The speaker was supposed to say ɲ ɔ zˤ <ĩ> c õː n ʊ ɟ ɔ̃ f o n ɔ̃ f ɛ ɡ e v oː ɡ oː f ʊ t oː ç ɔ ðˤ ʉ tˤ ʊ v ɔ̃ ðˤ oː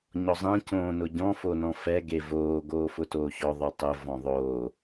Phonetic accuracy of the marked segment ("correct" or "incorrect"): incorrect